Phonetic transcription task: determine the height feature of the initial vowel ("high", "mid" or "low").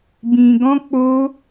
high